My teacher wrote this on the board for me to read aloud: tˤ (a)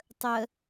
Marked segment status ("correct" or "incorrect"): incorrect